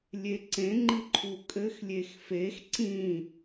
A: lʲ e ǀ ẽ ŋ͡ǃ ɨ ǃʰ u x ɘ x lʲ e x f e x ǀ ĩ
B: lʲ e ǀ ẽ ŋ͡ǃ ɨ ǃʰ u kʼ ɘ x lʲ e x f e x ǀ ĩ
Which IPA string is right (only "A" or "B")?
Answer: B